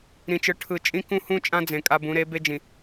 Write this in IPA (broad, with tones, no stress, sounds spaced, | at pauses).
ɾ ĩ˨ t͡ʃ ɯ˨ ʈʰ ɯ˨ t͡ʃʼ ĩ˦ k ũ˦ h ũ˦ t͡ʃʼ ã˦ d͡z ẽ˨ kʼ a˦ b ũ˨˦ ɾ e˨˦ b e˦ d͡ʒ ĩ˨